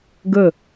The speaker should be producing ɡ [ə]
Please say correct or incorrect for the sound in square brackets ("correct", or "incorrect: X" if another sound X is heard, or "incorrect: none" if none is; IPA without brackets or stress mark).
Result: correct